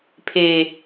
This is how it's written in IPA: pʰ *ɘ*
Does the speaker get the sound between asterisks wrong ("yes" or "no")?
yes